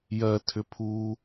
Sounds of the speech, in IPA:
j ɜ tʰ ʏ pʰ uː

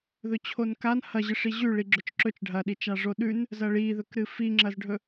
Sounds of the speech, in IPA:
ð ɵ t͡ɕʰ o n k a n h ɐ ʑ ɨ ʂ i ʑ ʉ ɭ i ɡ͡ǁ ɵ t͡ʃ ǁ ɵ t͡ʃ ɖʱ ɐ ɗ i t͡ʃ a ʐ o ɗ ʉ n | z ɐ ɭ i ð ɵ k ɾ ɨ f i ŋ͡ǁ ɐ z ɖʱ ɵ

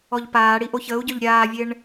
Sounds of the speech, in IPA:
ɔ ʎ p aː ɽ i ʔ o ç əː u̯ ɟ œ ʎ ɾʲ aː vʲ e ɳ

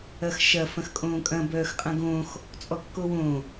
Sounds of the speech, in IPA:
ɐ x ʃ ɐ f ɐ̃ x kʼ õː kʼ ɐ̃ b œː x qʼ ɐ̃ ɡ õ x | t͡sʼ ɔ kː o w õ

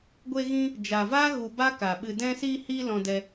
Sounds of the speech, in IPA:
ɡʷ e˧ ɣ ĩ˧ | d͡ʒ a˨ v aː˦ ɣ u˧ b a˦ k a˨ ɓ ɨ˨ d ɛ̃˧ s iː˧ h iː˧ l ɔ̃˧ d ɛ˧

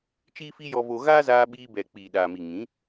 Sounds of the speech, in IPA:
t͡ʃ iː˦ f i˦ j ɔ˧ v o˧ ɣ aː˦ z aː˧ ɓ iː˧ b ɛ˨ k͡p iː˨ ɗ aː˨ m i˨ ŋ ĩ˨˦

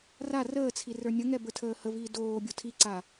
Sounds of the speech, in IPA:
r a r əː t͡sʰ i r ə˞ nʲ ə ŋ ɛ b ə˞ tʰ əː h ə v iː d oː bʲ o tʰ i ǀ aː

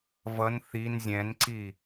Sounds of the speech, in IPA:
v ʌ n θ i n zʲ ɛ̃ n ǀ i

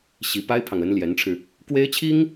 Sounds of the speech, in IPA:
ɕ i˧˥ p a˥ ɪ̯ pʰ ɑ˨ ŋ ə˧˥ n l j ɛ˧˥ n ʈ͡ʂʰ ɻ̩˧ | k w e˥ ɪ̯ t͡ɕʰ i˥ ŋ

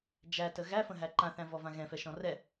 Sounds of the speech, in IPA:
d͡ʒ æ t ə ɣ æ f ə̃ ɦ æ ǃ ã θ æ̃ v ɔ v ã ɣ ɛ̃ f ɛ ʃ ɔ̃ r ɛ

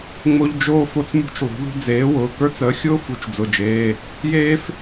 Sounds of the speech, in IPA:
ŋ͡m o˥ ʎ d͡ʒ oː˥ f o˥ t͡s m ṳ˥ t͡ʃ lˠ ṳ˨˥ ð ṳ˥ d͡z eː˨˥ w ʊː˩˧˩ k ə˞˥ t͡s əː˨˥ xʲ ʊː˥ f u˨˥ t͡ʃ d͡z ʊ˩˧˩ d͡ʒ eː˩˧˩ | j eː˥ f

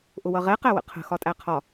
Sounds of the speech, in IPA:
ʔ ʊ w ʌ ʁ ɛ q æ w ə̰ qʰ ə̤ x ɒ tʼ æ qʰ ɒ

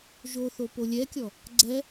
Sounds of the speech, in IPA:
ʒ o θ o p o lʲ ɛ kʲ ɔ | ɡ͡ǀ ɛ

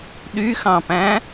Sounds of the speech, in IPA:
ɗ y x ɑ̃ p æ̃

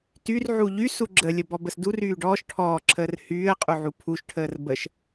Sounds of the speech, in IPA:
t y r ʕ u ʎ y s u ɡ͡ǁ ə lʲ ə b ɔ b ə s d u r yː ɖ ɔː ʃ ʈʰ ɔː ǁʰ əː r h yː ə̯ qʼ u ʕ u pʰ u ʃ ʈʰ əː r b ə ʃ

